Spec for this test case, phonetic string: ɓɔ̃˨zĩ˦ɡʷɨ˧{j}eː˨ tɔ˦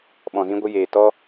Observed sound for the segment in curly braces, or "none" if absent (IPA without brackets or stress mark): j